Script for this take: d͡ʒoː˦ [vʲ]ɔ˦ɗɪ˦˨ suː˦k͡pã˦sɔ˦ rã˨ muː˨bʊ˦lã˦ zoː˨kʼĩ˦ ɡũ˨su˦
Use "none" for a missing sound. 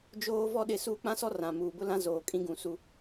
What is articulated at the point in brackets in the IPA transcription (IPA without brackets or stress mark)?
v